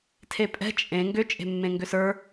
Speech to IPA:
tʰ e pʼ ɛ̤ t͡ʃʼ ẽ ŋ ɡ ʏ t͡ʃʼ e̤ mː ẽ ŋ ɡ ʏ s ə˞

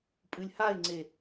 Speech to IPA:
pʼ ɨ lʲ h a ɪ̯ ŋ͡ǀ e

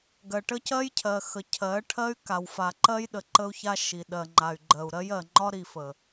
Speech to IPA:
ɡ ɜ˨ ʈ ə˦ c ɜ˦ j cʰ ɜ˨ x ə˨ cʰ ɜ˨˦ ʈʰ ɜ˦ y̯ k a˨ w f a˨ ǃ ɜ˦ j ɗ ə˨ ǃ ə˦ u̯ ç a˦ ʃ i˨ ɗ ɜ˨ ŋ͡ǃ a˨ y̯ ɡ͡ǃ ɜ˨ u̯ ɾ ɜ˦ j ɜ˨ ŋ͡ǃ ɒ˦ ɾ i˨ f ə˨

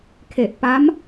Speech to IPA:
kʰ e˨˩ ʔ p a˦˥ m

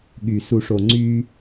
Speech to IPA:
ɠ y˨ s u˨ ʂ o˨ ŋ͡ǀ y˦

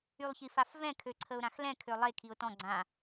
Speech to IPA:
y lˠ ç i f a f v ɛ̃ kʰ ø ǀʰ ə ʊ̯ ɾ ã x l ɛ̃ kʰ ø lˠ e kʰ i ʊ̯ t ɔ̃ ɡ͡ǀ ã

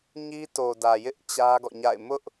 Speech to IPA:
ɲ i˦ t o˨ d ä˨ j ɪ˦ ʔ t͡ɕ ä˦ ɡ ɔ̰˦˨ ɲ a̰˦˨ ɪ̯ m ʊ˦ ʔ

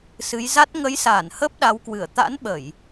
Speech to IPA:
s ɨ˨˦ j z a˦˥ t̚ ŋ ə˨˦ j s aː˧˩ n h əː˦˥ p̚ ɗ a˨˦ w k w ɨ˧˩ ə̯ t̪ a̰˧˥ n ɓ ə˧˩˨ j

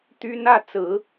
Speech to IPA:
t̪ y˥ n ä˥˩ t͡s ɹ̩˨˩˦

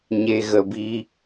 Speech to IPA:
ɲ e˧ ɣ ə˧ b i˦

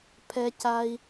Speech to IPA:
pʰ ɛ˥ c a˥ i̯

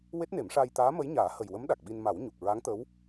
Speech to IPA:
w e˦˥ t̚ n e˨˩˦ m ʂ aː˧ j t̪ aː˧˥ m ə˧˥ j ɲ aː˨˩˦ h ə˨˩ j w ə˧˥ m ɗ a˨˩ k̚ ɓ i˧ n m a˨˩˦ w ɲ u˨˩ k̚ ɹ a˧˥ ŋ t̪ ə˧˥ w

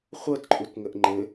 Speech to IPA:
χʷ ɤ t ǃʼ u t ŋ ə ʔ ŋ͡ǃ ɘ

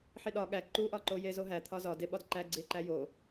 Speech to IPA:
ħ i ɗ ɒ ɠ æ ǃ u ʔ ɒ ǃ o j e z o ɦ æ t̪ʰ ɒ z ɒ d e ɓ ɒ d ǃ æ ɡ͡ǀ i e̯ ǃ æ j o

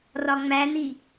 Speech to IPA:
r ɒ ŋ͡m æ n i

